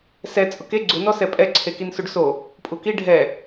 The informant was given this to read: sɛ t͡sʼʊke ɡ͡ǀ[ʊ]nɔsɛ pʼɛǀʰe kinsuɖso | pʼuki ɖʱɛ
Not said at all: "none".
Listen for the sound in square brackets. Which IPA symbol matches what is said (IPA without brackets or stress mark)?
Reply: ʊ